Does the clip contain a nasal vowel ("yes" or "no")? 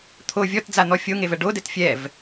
no